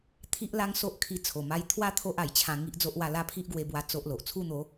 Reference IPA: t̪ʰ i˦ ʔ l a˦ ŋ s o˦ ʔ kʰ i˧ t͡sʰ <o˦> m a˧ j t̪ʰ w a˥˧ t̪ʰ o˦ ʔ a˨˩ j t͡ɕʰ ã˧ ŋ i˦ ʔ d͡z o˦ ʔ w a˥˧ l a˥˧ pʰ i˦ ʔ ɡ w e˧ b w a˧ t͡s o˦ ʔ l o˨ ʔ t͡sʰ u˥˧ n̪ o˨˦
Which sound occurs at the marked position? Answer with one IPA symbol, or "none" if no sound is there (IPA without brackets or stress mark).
o˨˩